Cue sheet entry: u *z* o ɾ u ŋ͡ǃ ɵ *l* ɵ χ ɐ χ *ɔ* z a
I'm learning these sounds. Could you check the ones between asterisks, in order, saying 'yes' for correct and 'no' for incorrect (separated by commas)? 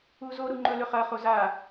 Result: yes, yes, no